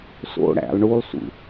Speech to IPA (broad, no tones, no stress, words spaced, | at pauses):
so̰ ɽæ̰lˠ ɳulˠsṵ